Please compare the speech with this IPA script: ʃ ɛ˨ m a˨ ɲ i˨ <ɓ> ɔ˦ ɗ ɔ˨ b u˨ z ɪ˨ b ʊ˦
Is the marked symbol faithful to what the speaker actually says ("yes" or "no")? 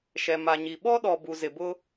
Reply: yes